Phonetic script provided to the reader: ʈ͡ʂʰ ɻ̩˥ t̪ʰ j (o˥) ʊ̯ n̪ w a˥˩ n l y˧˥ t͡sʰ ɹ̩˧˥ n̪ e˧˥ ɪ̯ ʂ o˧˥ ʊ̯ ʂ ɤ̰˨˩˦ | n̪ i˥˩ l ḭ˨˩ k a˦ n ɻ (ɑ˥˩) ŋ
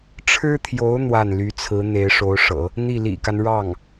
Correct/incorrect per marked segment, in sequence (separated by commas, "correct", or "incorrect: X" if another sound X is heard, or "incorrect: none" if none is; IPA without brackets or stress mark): incorrect: o˧˥, correct